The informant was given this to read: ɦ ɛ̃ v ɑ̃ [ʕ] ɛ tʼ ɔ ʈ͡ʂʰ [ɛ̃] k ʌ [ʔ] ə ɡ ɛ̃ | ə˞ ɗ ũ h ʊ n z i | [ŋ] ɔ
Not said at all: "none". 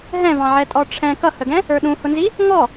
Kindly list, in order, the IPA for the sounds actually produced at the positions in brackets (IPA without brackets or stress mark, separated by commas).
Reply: ʕ, ɛ̃, h, ŋ